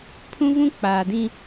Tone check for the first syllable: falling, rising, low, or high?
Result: high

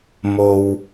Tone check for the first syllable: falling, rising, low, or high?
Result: low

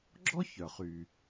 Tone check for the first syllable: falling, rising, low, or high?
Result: high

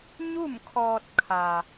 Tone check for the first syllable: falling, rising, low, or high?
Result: falling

